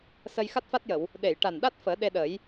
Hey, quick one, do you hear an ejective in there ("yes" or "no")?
no